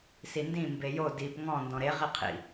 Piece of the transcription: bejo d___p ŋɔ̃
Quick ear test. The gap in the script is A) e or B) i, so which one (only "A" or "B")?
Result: B